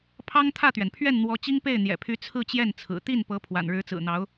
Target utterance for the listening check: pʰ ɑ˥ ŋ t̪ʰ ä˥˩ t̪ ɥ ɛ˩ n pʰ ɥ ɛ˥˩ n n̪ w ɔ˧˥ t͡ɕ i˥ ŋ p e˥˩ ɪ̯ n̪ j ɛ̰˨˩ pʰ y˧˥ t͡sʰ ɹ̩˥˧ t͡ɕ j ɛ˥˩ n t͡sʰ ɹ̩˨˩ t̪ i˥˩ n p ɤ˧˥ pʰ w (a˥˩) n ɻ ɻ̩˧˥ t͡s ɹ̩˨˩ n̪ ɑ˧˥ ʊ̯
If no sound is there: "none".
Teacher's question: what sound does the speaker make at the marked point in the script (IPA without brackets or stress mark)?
a̰˨˩